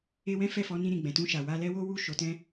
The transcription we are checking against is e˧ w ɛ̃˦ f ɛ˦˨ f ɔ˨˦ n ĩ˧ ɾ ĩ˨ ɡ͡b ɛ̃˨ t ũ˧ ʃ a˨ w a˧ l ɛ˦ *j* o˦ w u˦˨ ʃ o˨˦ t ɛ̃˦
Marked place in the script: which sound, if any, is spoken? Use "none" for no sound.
w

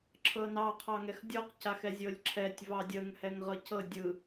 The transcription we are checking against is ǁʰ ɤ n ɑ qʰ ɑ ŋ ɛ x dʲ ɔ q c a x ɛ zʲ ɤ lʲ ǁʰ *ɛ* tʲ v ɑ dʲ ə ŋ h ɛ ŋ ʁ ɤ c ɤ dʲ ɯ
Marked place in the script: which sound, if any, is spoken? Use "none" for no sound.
ɛ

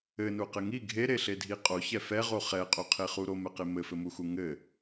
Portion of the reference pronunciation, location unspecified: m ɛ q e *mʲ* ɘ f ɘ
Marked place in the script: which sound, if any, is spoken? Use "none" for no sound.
m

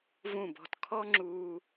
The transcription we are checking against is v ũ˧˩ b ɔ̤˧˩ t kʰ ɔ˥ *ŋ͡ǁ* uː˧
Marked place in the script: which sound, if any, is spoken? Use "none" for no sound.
ŋ͡ǁ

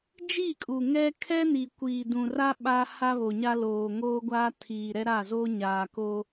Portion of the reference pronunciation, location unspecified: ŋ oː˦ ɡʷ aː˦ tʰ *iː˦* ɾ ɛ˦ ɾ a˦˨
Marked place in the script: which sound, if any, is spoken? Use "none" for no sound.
iː˨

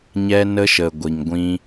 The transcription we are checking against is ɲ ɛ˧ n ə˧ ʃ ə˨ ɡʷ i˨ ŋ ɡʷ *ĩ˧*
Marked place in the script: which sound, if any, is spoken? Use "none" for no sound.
ĩ˧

